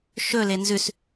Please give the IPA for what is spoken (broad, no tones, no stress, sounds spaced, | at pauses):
ʃ ɵ l e n z ʉ s